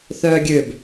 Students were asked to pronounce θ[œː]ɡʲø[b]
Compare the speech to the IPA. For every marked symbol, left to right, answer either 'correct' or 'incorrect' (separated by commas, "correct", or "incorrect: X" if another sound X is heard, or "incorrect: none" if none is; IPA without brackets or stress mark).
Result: correct, correct